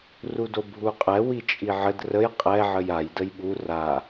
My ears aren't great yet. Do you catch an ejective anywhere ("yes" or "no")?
yes